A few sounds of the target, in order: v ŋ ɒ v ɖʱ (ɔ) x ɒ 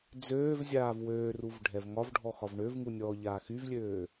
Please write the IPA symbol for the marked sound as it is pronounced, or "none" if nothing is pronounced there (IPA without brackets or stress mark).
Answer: ɔ